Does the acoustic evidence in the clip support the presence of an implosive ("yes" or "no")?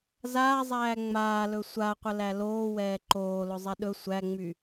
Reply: yes